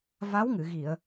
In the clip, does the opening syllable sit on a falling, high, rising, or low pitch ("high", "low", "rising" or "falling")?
rising